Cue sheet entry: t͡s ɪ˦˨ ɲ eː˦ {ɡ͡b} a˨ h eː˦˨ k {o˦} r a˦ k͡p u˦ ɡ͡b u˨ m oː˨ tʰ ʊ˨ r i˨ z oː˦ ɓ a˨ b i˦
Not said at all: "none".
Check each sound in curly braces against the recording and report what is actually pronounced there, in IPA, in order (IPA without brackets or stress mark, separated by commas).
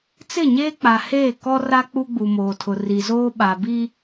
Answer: k͡p, ɔ˦